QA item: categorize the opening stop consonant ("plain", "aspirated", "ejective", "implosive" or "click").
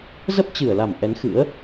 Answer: plain